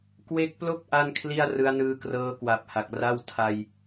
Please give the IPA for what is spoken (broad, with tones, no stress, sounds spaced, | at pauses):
k w e˦˥ k̚ p l o˥˩ k̚ ʔ a˥˩ n kʰ l i˥˩ a̯ r ɯ˦˥ a̯ n ɯː˦˥ k r ɤː˦˥ k w a˨˩ p̚ h a˨˩ k̚ r a˥˩ w tʰ a˧ j